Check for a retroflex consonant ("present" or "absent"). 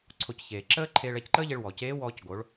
present